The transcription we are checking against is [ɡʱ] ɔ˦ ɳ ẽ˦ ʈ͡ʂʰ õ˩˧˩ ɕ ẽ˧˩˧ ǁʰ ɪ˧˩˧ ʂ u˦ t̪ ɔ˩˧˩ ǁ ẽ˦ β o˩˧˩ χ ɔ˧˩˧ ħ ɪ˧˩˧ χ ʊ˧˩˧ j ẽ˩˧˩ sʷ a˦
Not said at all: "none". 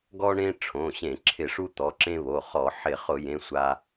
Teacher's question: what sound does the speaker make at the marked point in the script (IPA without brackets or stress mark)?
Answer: ɡ